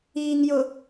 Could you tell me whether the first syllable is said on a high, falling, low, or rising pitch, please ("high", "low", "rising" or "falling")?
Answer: low